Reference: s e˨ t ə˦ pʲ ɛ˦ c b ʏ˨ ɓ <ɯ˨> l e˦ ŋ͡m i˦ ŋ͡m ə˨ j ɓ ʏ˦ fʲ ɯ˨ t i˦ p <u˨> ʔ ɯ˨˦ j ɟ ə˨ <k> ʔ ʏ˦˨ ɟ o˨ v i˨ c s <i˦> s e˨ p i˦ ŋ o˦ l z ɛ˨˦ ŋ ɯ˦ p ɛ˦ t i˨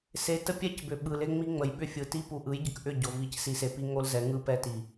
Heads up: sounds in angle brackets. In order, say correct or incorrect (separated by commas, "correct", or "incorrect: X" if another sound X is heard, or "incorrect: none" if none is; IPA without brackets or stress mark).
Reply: correct, correct, correct, incorrect: i˨